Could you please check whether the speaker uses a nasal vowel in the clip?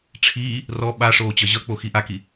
no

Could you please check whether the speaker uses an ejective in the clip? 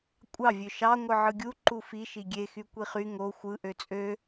yes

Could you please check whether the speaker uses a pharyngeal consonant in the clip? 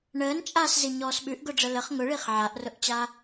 yes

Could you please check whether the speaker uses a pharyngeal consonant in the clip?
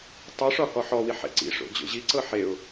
yes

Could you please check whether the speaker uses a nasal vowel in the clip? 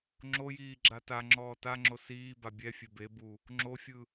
no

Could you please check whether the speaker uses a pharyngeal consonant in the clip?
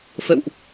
no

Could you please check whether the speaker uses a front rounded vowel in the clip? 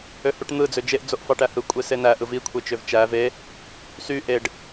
yes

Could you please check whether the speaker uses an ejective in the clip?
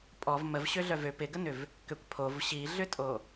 yes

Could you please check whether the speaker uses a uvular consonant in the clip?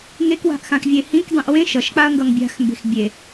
no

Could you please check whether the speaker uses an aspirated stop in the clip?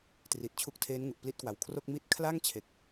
yes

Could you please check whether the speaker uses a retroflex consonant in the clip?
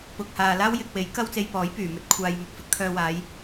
no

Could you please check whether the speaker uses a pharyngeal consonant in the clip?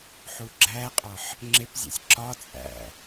yes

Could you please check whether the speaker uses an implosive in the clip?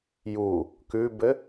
no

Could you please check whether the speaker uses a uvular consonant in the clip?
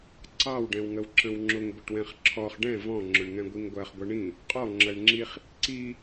yes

